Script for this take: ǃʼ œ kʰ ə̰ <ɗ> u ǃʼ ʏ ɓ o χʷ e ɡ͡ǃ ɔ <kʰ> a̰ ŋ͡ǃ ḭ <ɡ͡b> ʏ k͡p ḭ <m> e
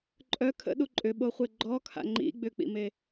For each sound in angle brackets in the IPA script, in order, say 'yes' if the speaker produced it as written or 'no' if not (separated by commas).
yes, yes, yes, yes